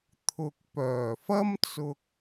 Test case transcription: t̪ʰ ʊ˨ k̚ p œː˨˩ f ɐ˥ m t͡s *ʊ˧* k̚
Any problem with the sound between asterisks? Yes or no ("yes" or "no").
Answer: no